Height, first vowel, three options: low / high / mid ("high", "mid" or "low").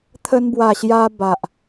mid